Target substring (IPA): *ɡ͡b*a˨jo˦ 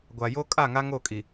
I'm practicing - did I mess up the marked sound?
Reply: yes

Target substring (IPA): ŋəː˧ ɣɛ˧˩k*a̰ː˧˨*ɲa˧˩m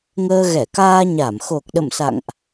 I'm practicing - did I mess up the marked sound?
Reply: yes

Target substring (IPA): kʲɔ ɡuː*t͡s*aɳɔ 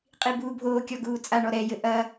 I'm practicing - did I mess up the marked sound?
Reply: yes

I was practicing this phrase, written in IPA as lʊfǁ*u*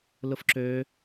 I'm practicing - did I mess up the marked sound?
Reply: yes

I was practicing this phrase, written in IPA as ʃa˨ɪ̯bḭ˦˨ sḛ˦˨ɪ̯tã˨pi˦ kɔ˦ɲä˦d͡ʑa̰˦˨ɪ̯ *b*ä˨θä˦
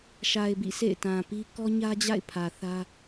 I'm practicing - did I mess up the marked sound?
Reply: yes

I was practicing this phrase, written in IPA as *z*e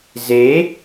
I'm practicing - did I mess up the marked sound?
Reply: no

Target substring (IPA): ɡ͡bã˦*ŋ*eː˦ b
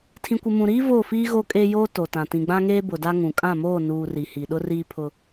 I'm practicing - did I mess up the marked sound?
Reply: no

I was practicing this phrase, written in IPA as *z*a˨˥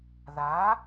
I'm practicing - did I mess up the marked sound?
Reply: yes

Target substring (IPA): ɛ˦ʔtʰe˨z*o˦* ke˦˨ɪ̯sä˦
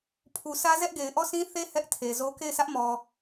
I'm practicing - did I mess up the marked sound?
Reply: no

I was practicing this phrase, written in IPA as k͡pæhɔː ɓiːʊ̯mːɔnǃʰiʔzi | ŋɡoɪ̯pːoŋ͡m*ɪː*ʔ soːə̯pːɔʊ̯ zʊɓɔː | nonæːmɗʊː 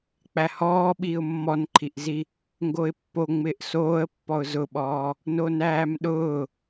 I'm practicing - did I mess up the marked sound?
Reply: no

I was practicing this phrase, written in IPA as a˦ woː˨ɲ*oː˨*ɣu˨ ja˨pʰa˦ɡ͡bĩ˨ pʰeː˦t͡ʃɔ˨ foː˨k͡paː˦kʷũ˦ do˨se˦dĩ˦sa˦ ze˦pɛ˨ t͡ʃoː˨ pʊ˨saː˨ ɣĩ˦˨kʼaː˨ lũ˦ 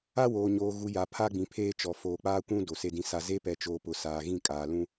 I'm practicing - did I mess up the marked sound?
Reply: no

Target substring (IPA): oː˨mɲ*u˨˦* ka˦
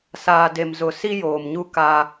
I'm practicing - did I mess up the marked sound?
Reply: yes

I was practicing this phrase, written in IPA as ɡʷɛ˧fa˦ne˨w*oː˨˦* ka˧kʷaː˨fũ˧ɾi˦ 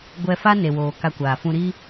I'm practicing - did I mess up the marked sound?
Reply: yes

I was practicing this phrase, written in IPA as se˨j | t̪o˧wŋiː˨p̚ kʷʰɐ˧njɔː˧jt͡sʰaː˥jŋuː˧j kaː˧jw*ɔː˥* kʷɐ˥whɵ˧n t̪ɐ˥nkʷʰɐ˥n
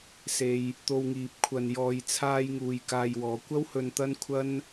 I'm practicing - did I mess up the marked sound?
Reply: yes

